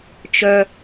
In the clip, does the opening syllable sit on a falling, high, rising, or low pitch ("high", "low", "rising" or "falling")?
high